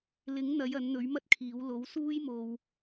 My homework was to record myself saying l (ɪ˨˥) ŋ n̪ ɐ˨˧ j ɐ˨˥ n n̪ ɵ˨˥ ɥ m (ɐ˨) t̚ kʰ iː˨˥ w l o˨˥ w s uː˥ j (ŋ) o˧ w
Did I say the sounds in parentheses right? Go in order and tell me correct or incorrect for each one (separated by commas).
correct, incorrect, incorrect